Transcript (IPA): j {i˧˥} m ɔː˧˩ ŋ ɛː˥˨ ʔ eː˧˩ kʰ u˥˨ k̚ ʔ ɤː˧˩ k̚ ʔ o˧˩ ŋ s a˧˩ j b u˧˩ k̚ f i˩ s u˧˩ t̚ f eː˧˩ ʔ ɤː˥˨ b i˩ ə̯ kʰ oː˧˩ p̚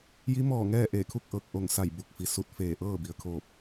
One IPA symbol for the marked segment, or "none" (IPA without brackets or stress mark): i˧˥